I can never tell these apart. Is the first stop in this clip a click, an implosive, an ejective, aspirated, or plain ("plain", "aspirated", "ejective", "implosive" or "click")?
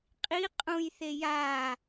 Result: ejective